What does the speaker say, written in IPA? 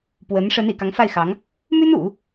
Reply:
pwə˧˥n ʂə˧˥n ḭ˨˩kɑ˧˥ŋfa˥˩ɪ̯xɑ˧˥ŋ | my˥nṵ˨˩˦

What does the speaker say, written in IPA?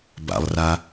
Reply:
ba̰lˠra

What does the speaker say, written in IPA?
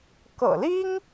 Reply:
kɤ̰˨˩li˥ŋ

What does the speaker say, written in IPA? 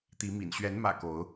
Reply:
t̪i˨˦mḭ˨˩n ɕɥɛ˨˦nmä̰˨˩ ko˨˦ʊ̯

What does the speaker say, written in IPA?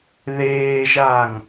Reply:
ðeːʒaːŋ

